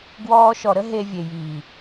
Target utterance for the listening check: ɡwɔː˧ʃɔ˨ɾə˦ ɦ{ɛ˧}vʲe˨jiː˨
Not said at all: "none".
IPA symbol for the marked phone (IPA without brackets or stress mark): e˧